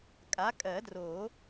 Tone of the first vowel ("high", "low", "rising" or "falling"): rising